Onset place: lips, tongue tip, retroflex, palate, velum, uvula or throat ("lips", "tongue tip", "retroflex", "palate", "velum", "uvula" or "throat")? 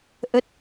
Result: throat